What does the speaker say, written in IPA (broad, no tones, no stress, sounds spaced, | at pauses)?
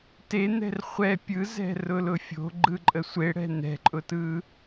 t e n̪ ɛ̤ r χʷ ɛ pʲ ɯ z ɛ̤ r ʊ l ʊ fʲ o̤ ɡ͡ǃ ɯ ǃʼ ə sʷ e ɽ ɛ̤ n̪ ɛ̤ ǃʼ ʊ t ɯ